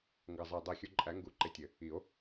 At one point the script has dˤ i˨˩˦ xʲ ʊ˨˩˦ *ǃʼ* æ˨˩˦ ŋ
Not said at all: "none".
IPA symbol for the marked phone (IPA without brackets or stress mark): ǃʼ